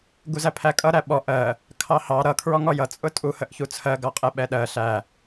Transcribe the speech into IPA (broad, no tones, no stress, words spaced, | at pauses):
ɡuzæpʰækʼʌ ɾæɓɔ ʔɜ | kʰɑhɑ ɾʌ kʰɹɔŋɔjʌ t͡sʼʊtʼu həʔçut͡sʰɜ ɡɑqʼɛɓɛɗɜ ɬæ